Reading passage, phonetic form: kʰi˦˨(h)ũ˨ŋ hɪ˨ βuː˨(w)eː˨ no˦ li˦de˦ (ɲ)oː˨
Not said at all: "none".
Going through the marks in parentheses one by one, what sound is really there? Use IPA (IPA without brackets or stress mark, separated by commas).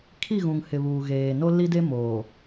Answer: ɣ, ɣ, m